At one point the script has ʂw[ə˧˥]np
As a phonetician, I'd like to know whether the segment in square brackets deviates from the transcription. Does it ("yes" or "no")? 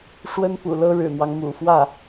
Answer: yes